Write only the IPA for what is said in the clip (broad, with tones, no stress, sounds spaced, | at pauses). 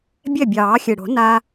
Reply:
bʲ ɛ˥˩ bʲ ɑː˨˩˦ xʲ ɨ˨˩ ɽ o̤˨˩˦ n a˧